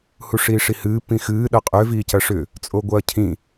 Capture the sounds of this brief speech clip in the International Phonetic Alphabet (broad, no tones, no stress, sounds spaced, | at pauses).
h u ʂ iː ʂ i h ɨː p ĩ x ɨː ɗ ɐ qʼ ø v iː c ɐ ʂ ʏ | t͡sʼ o ɡʷ ɐː cʰ ĩ